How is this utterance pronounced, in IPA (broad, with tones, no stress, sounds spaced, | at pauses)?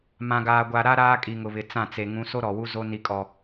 m ã˨ ɡ aː˨ ɡʷ a˨ ɾ a˦ ɾ aː˦ kʼ i˨ ŋ ʊ˨ β ɪ˨ t͡s ã˦˨ t͡s e˨ ŋ ũ˨˦ s o˦ ɾ ɔ˨ w u˦ z o˦ n i˦ kʼ ɔ˦